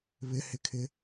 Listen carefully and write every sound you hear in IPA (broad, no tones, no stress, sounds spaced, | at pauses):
β ɪ h ɪ kʰ ɪ